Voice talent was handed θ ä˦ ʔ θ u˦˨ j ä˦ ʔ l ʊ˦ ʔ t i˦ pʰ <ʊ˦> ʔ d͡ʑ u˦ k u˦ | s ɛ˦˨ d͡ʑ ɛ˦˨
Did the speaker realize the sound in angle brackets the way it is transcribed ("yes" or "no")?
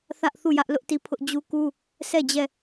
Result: yes